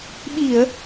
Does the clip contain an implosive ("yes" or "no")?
yes